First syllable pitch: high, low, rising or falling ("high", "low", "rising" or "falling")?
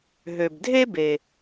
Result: low